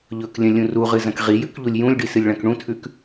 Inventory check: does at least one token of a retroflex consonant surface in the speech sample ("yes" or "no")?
yes